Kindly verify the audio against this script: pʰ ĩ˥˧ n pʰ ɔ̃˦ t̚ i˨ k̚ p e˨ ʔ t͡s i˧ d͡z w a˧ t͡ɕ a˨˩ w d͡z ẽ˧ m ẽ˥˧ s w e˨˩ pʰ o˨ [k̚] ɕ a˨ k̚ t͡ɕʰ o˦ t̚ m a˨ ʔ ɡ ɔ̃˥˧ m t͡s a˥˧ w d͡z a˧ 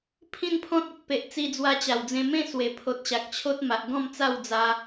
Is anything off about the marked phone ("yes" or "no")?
yes